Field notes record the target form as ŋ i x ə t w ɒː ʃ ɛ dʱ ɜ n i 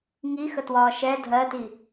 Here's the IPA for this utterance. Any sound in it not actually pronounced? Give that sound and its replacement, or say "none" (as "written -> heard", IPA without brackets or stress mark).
n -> t